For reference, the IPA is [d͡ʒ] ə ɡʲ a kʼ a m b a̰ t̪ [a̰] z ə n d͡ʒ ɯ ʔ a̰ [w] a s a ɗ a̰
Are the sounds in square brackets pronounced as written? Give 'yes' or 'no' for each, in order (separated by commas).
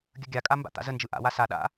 no, yes, yes